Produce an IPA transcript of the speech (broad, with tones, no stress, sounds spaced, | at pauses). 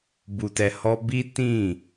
b u˧ t ɛ˧ h ɔ˦ b i˦ t ĩ˦˨